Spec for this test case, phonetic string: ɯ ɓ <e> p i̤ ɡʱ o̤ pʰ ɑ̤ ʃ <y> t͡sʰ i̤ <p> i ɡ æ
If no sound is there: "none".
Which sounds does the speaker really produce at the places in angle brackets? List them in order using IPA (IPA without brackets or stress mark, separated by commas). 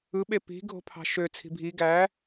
e, ø, bʱ